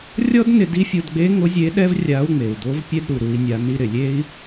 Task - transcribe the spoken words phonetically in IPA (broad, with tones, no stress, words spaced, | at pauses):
rʲɔ˥dnɪ˧ di˧˥fʲo˧dɡ͡be˧˥ ŋʊ˧˥zʲe˧˥ɗɛ˥v rʲa˧˥u̯ŋ͡me˩u̯ do˧˥vpʲɛ˥d ɾu˩ ɾu˩˧i̯nʲa˩˧ ni˧ ɾɪ˩lʲe˥i̯